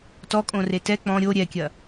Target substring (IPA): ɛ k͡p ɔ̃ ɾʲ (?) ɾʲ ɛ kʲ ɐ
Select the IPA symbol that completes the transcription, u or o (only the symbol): o